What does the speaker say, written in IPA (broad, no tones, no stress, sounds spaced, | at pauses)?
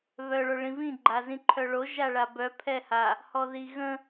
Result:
β œ ɭ o ɭ ĩ v ĩ ɡ͡ǃ a z ĩ ǃʰ œ ɭ o ʒ a ɭ a b œ pʰ ɛ h a | h ɔ ð i ɣ ə̃